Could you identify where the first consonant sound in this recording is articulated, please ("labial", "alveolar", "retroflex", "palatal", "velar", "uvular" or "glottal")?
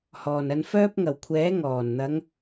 glottal